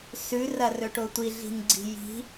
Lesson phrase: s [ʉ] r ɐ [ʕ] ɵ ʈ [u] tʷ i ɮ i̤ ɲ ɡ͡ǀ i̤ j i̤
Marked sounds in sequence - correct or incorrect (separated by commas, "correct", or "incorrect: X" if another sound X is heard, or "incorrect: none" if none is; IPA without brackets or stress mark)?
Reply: correct, incorrect: r, incorrect: o